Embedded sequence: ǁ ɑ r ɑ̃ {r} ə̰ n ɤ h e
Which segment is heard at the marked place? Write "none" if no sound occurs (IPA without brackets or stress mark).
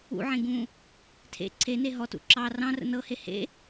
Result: r